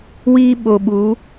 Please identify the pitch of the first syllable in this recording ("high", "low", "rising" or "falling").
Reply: high